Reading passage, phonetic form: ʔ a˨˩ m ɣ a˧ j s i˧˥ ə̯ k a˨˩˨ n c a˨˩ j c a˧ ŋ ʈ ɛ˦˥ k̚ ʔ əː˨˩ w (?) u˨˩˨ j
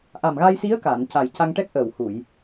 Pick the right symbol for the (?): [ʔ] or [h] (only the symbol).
h